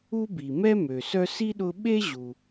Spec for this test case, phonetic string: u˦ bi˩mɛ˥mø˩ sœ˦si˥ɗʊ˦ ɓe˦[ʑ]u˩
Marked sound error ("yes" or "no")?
no